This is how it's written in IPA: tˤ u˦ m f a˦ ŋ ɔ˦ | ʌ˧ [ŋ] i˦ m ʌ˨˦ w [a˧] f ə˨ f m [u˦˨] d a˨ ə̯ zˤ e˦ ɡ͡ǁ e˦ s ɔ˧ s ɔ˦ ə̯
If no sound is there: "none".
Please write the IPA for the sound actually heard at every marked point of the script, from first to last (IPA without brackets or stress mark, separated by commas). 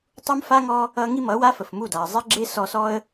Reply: ŋ, a˦, u˦˨